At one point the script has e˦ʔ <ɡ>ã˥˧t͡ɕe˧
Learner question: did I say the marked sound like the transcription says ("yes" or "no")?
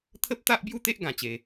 yes